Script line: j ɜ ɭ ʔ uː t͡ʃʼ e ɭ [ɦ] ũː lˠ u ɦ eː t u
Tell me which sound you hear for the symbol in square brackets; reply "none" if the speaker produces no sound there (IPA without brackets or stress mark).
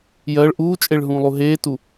ɦ